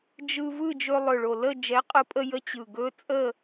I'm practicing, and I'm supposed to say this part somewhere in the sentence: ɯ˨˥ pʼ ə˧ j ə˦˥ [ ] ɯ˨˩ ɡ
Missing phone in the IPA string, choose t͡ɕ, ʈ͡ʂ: t͡ɕ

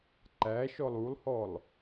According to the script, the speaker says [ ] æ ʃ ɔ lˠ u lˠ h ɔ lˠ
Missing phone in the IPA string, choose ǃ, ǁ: ǃ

